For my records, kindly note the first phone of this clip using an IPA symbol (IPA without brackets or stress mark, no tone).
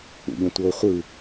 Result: ṵ